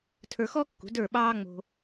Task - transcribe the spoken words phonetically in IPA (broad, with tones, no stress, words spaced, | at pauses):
tʰə˞˧xɔ˥kːṳ˩˥ də˞˥˩ɓɑː˥ŋ͡mo̤˧